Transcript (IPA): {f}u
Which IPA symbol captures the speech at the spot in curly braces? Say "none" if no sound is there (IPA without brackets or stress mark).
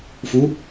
f